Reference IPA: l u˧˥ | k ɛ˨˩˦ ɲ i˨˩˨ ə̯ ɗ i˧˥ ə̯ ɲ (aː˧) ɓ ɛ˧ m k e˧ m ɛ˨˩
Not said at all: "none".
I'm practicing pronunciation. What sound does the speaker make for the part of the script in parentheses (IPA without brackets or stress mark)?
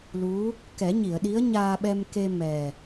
aː˧